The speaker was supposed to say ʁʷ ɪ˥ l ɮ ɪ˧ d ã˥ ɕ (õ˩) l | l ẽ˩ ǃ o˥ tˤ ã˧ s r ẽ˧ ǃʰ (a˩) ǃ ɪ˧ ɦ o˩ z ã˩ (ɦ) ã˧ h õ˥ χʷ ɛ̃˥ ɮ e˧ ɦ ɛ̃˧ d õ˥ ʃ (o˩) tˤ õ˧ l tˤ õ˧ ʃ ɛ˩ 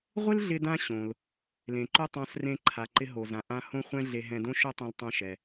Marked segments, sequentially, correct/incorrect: correct, correct, incorrect, incorrect

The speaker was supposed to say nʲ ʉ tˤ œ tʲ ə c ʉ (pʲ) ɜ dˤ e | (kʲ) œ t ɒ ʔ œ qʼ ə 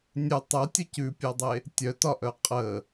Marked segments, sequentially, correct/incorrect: correct, incorrect

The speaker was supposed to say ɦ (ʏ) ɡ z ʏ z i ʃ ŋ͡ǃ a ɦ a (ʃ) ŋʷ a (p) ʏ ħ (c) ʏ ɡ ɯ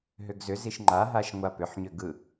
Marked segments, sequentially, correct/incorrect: correct, correct, correct, incorrect

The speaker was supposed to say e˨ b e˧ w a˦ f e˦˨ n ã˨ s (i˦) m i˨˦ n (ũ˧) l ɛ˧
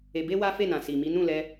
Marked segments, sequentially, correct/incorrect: incorrect, incorrect

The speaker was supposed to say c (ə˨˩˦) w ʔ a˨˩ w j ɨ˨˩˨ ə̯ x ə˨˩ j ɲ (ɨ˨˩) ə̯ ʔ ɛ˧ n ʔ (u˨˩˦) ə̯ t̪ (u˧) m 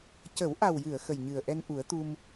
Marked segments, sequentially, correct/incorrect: correct, correct, correct, correct

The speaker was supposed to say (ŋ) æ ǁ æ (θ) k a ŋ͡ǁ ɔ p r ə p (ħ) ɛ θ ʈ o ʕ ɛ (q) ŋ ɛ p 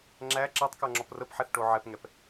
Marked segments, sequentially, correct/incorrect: incorrect, incorrect, correct, incorrect

